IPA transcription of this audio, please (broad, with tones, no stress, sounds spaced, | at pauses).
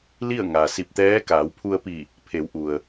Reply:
l i˥˨ ə̯ ŋ a˩ s i˧˩ p̚ t̪ ɛː˧˥ k aː˩˧ w pʰ u˧ ə̯ p i˧˩ | pʰ e˩˧ w ʔ u˩ ə̯